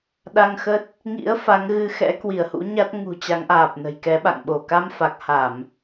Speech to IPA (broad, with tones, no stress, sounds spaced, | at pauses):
ɗ a˧ ŋ x ə˦˥ t̚ | ŋ ḭ˧˥ ə̯ f a˨˦ ŋ ɣ ɨ˧ x ɛ̰˧˥ k w i˧˩ ə̯ h ṵ˧˥ ɲ a˦˥ t̚ ŋ ṳ˨˩ t͡ɕ a˨˦ ŋ ʔ aː˨˩ p̚ n ə̤˨˩ j k ɛ˨˦ ɓ a̰˧˨ ŋ ɓ o˧˩ k a˧ m f a˨˩ k̚ h a˧˩˨ m